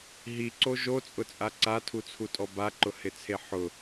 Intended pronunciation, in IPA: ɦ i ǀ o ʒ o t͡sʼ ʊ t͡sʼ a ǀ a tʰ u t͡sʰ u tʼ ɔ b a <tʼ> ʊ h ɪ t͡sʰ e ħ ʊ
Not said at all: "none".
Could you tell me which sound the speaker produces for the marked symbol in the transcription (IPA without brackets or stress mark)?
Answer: ǃ